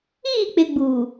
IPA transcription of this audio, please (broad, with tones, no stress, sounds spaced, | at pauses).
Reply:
iː˦˨ k͡p ɪ˨ ɡ͡b u˨